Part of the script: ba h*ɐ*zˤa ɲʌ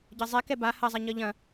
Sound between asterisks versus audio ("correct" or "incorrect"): correct